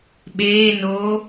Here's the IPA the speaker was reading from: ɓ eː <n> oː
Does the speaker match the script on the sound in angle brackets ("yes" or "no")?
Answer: yes